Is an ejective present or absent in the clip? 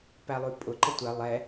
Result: present